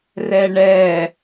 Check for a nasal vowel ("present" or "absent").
absent